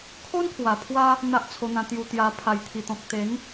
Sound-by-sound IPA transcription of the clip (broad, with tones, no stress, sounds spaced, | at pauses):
kʰ o˦ n kʰ w a˨˩ pʰ w a˦ | n̪ a˦ ʔ t͡sʰ o˧ n̪ ã˧ t̪ j u˧ t̪ j a˧ pʰ a˨˩ j t̪ʰ i˨˩ t̪ ɔ̃˨ k̚ t̪ e˨˦ ŋ